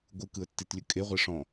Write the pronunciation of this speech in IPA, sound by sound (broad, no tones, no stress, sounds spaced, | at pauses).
ɡʷ ɯ k ɯ ə̯ tː i t lʲ ɵ kʼ e ʁʷ e ʂ ɔ̃